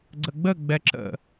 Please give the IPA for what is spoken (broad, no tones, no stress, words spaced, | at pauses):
ɡ͡ǀəɡ͡bəɡ͡bɛ ǁə̰